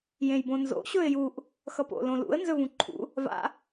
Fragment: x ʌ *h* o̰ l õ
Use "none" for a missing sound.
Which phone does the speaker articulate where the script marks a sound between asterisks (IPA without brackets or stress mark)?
p